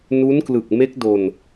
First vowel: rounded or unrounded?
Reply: rounded